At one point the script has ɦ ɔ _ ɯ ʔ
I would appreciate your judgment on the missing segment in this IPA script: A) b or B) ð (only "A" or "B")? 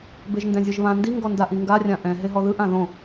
B